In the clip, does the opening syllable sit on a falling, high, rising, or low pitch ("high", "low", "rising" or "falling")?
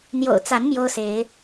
low